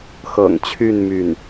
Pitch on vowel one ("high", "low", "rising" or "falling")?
low